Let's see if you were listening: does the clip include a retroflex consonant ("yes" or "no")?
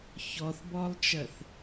no